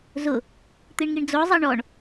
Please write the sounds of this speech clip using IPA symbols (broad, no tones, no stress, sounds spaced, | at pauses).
z ʊ | t̪ i ɳ ŋ i ɳ d͡z o zˤ i ɳ ɔ ɳ